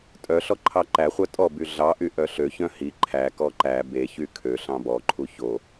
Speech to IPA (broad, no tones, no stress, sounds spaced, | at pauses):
tʼ œ ɬ ɔ ǃʰ ɑ ǃ æ χʷ œ tʼ ɔ b y ɮ ɑ ʔ y ʔ œ ɬ ø ç œ̃ h i ǃʰ æ k ɔ ǃ æ b e ç y kʰ ø ɬ ɑ̃ b ɔ ǃʰ u ç o